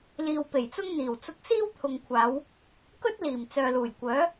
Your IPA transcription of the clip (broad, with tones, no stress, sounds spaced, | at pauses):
l iː˨ w p e˨˩ j t͡s ʊ˥ ŋ n̪ iː˨˩ w t͡s ʊ˧ k̚ s iː˥ w t̪ʰ ʊ˨ ŋ kʷʰ aː˨˧ w | k ɵ˥ t̚ l iː˨˩ m t͡s œː˨ l uː˨˩ j kʷ œː˨˥